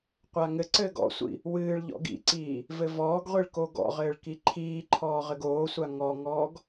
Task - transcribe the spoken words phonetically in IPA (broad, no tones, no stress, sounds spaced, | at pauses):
qʷ a ŋ ɘ ǀ ɘː ɡ ɔ̰ sʷ ḭ | w ɨː ɭ ʎ ɔ̰ ɡ ḭ ǀ iː | v ɘ v ɔː ɡ ʁʷ i ɭ k o ɡ ɔ̰ ʁ ɘː ɭ k i ǃʰ iː ǃʰ ɔː ʁ ɘ ɡ oː sʷ a ŋ ɔ ŋ ɔː ɡ